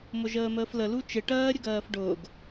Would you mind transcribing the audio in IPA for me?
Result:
m ʊ ʒ əː m əː f l ə l u t͡ʃ ɪ ʈ ɜː ɾʲ ə ɡ ɜː f ɖ ʊː ɡ

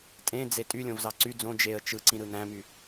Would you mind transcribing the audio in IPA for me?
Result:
tʼ ẽ d͡z e tʼ y lʲ õ v z ɑ ǀ y d͡z õ d͡ʒ e ə̯ t͡ʃ ɯ ǀ ĩ ɾ ɯ n æ̃ m y

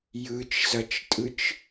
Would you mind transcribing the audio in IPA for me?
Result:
j ɯ t͡ʃ z ʌ t͡ʃ tʼ ɯ t͡ʃ

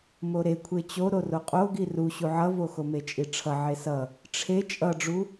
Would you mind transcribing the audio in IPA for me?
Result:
m o ɾ e kʷʰ e t͡ɕ o ɾ o r o qʼ o ɡ i r u ɕ u ʕ ʌ v o x o m e t͡ʃʼ i ʈ͡ʂʰ ʌ ʕ e s ʌ | ʈ͡ʂʰ e t͡ʃʼ ʌ ɖ͡ʐ u

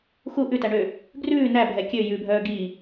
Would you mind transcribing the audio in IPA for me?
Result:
x u ʔ ʉ t æ ɳ ø | ɡ r ʉː n æ bʱ ɛ kʲ ø j ʉ bʱ œː ɡ i

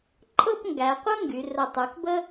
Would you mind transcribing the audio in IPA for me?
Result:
ǃʼ ɤ˥˧ p ŋ ɡ æ˩˧ qʷ ɤ˥ ŋ ɡ y˩˧ r ə˧˩ tˤ ʉ˩˧ k b ə˥

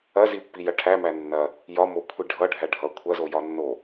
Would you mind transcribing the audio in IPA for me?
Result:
ɐ z i pː i j ɐ ʈʰ æ m æ nː ɐ | j ɒ m o kʷʰ i ɖʱ ʌ ɖʱ æ ɖʱ ʌ kʷʰ ɐ z o j ɒ nː o

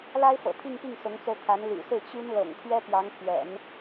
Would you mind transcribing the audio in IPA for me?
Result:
l a˥ ɪ̯ f ɤ̰˨˩ t̪ʰ i˥˧ ŋ p i˥˩ ŋ s ʊ˧˥ ŋ t͡s o˧ ʊ̯ t̪ʰ a˧˥ n l y̰˨˩ s ɹ̩˥˩ t͡ɕ y˥ n l ɤ̰˨˩ ŋ t̪ʰ ɥ ɛ˥ p j ɑ˧˥ ŋ pʰ ɥ ɛ̰˨˩˦ n

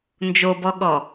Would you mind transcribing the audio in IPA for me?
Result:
n d͡ʒ o b ɔ ɠ ɔ

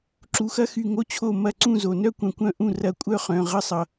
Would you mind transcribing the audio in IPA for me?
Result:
ǁ u˩˧˩ x ɐ˥ x y˧˩ ŋ o˥ t͡ɕʰ o˥˩ m ɐ˥˩ ǀ ũ˥˩ z o˩ n œ˥ kʷ œ̃˧˩ kʷ œ̃˥˩ ʔ ũ˥˩ r ɐ˥˧ kʷʼ œ˥˧ χ œ̃˩˧˩ ʁ ə˥ sˤ ʌ˩

